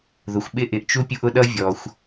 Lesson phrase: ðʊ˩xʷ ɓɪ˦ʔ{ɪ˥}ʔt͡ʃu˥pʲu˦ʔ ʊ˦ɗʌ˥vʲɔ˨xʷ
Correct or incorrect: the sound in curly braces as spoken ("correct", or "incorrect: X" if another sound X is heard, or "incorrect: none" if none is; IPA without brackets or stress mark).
incorrect: ɪ˨